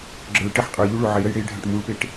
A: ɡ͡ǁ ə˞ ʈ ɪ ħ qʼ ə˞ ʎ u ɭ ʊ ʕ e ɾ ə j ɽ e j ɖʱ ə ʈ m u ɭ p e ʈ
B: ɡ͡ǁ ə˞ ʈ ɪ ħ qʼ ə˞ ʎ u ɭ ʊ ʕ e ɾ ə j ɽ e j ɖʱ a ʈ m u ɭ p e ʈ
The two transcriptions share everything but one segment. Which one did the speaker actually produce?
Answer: B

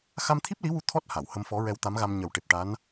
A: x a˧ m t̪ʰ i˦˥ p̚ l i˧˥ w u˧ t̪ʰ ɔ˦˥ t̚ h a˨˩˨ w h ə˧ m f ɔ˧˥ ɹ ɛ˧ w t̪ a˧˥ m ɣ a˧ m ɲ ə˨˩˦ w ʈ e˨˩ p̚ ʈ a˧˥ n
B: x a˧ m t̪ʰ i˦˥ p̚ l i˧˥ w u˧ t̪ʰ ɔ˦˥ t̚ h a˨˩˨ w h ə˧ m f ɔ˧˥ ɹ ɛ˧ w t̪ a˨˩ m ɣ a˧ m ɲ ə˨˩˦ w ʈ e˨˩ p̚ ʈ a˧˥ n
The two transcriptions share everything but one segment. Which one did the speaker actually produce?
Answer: A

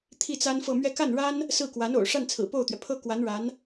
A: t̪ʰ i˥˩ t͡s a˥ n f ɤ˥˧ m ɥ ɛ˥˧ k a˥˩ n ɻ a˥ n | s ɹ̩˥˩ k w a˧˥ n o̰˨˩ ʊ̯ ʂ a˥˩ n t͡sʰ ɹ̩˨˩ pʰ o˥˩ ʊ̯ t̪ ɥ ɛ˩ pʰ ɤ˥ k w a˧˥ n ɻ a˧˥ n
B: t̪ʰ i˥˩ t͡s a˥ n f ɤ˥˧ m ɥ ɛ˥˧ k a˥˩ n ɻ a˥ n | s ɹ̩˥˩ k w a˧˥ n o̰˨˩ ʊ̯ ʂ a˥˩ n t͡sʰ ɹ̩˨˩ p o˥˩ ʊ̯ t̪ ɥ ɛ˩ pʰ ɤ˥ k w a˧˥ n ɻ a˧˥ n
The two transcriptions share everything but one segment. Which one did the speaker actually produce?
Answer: B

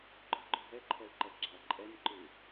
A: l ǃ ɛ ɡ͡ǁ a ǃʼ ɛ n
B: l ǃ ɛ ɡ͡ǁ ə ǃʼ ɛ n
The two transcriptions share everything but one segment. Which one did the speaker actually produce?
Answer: A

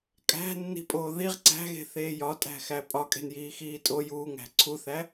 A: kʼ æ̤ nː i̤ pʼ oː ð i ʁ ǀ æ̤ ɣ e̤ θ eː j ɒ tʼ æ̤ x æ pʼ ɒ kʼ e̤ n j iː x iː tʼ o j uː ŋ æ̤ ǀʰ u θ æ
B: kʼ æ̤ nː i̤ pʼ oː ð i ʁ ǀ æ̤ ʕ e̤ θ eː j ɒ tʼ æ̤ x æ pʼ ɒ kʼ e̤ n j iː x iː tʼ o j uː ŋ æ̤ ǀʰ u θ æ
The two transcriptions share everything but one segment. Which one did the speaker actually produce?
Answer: A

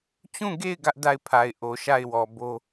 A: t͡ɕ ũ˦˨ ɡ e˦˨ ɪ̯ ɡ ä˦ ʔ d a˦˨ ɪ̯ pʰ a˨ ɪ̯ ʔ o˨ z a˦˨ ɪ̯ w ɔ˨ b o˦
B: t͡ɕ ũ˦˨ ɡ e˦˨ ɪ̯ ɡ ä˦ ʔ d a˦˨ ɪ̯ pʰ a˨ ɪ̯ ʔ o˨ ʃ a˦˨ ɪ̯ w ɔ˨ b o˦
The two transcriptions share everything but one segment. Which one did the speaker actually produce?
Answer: B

